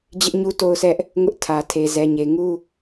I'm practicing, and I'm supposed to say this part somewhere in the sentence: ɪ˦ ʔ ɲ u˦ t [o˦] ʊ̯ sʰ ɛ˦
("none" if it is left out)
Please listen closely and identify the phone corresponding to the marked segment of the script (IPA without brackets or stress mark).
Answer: o˦